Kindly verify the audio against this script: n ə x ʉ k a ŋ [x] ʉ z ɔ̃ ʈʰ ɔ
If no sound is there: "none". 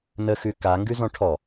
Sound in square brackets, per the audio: ɡ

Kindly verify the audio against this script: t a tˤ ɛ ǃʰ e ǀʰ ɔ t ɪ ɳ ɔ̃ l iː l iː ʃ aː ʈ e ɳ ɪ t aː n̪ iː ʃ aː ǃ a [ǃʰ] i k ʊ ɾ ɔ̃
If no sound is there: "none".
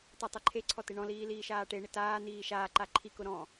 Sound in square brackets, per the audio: ǃʰ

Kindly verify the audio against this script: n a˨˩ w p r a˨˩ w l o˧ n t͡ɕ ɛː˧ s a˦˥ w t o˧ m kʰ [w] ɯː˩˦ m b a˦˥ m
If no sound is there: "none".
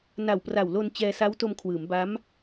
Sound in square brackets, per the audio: w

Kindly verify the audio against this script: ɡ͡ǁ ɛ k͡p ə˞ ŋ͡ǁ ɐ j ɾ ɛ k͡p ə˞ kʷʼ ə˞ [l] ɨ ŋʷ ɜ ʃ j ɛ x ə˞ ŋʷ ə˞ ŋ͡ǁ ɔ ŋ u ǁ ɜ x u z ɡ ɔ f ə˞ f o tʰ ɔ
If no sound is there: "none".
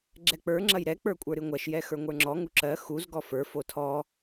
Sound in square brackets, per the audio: ɾ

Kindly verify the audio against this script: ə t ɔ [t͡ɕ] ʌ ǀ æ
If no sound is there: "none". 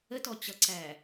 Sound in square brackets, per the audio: t͡ɕ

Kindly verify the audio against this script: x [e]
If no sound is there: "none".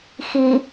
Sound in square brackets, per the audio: i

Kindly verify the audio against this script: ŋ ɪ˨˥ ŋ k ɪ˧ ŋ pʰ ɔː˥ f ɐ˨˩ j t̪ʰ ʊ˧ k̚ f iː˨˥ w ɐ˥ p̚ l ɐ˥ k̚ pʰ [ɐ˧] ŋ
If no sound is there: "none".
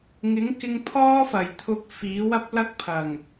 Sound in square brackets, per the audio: ɐ˨˩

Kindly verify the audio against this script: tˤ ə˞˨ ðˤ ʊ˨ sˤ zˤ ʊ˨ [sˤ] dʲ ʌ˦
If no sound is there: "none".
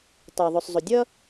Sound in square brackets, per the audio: none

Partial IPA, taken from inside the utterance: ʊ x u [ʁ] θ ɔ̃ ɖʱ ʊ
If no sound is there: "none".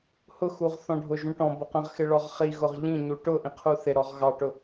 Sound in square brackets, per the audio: ʁ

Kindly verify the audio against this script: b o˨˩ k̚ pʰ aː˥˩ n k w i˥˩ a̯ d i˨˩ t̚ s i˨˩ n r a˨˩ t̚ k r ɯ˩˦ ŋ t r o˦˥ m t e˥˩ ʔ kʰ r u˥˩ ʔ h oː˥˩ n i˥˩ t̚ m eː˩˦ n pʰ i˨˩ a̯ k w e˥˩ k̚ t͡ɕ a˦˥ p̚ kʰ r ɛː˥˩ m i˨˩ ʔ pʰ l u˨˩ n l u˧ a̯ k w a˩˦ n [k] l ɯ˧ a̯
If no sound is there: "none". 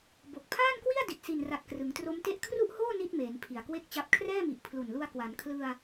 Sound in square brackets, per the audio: kʰ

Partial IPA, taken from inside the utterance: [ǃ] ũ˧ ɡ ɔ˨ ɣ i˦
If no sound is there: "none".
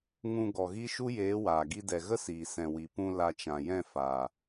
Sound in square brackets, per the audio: ŋ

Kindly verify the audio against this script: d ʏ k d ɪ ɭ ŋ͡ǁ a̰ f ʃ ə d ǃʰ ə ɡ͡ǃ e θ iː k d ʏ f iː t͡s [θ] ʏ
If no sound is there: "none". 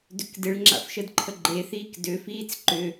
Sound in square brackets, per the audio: ǃ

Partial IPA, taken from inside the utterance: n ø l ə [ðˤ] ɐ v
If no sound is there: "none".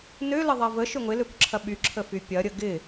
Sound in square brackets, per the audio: ðˤ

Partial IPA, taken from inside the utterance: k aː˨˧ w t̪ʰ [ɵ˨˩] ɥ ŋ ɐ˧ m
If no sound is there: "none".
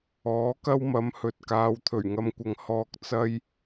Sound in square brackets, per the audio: ɵ˨˩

